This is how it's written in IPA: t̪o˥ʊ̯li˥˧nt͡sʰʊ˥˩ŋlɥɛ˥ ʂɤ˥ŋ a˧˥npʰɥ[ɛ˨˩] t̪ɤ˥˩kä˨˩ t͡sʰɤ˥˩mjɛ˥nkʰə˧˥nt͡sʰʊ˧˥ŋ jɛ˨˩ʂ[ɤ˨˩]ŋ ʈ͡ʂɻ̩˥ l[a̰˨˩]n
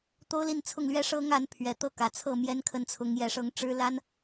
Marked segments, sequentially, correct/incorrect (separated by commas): correct, incorrect, incorrect